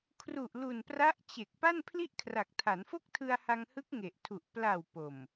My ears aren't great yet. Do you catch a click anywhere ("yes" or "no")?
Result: no